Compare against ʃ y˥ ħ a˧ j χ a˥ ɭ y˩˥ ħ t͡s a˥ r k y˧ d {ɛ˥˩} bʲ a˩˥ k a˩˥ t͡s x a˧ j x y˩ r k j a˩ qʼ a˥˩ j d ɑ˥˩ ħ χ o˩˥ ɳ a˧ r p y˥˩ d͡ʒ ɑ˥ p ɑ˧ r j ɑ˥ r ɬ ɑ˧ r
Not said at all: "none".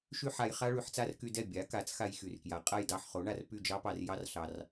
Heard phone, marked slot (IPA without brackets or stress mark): ɛ˥˩